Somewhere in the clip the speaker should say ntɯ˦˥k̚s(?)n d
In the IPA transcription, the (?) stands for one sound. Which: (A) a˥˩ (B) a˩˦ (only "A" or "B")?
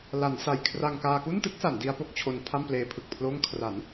B